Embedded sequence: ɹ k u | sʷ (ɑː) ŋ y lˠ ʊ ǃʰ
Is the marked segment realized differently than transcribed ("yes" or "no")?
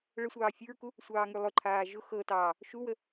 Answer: no